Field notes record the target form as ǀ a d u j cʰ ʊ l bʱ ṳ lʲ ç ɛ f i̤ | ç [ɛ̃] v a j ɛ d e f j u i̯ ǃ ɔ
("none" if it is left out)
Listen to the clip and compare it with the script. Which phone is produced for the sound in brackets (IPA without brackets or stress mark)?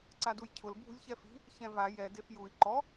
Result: ɛ̃